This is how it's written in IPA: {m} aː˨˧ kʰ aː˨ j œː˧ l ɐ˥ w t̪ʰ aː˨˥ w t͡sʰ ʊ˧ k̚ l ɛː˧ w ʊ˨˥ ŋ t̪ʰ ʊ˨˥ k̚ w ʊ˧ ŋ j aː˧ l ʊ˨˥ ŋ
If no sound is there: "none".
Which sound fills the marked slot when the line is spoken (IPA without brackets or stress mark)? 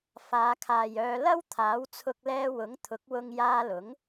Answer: f